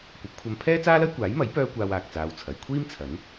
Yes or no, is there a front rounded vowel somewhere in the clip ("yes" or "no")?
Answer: yes